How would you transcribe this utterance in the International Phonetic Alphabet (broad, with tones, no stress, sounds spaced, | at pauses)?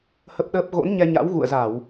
h ə˦˥ p̚ ɗ əː˦˥ p̚ ɣ o̰˧˥ n ɲ ɛ˧ ɲ a̰˧˥ w ɣ ṵ˧˨ ə̯ z a˧˩˨ w